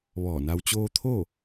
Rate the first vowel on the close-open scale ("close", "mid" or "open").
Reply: mid